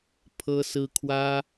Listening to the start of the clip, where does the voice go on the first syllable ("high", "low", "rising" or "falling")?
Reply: high